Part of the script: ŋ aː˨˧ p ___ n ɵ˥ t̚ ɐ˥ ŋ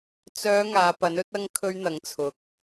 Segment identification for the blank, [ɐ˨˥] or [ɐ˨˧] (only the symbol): ɐ˨˥